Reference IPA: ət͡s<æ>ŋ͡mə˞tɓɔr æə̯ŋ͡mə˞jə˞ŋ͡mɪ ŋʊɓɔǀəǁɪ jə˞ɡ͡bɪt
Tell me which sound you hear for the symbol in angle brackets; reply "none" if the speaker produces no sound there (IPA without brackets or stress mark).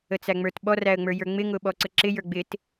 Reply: æ